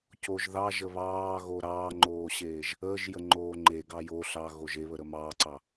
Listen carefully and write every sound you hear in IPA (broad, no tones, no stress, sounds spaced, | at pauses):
c o ʒ ð ɑ ʒ ə β ɑː ɣ o ɾ ɑː ŋ͡ǃ oː ɕ eː ʒ | əː ʒ j ə ŋ͡ǃ oː ŋ͡ǃ e ɡ ɑ j o ɬ ɑ ɣ o ʒ e β ə ɾ ə m ɑː ǀ ɑ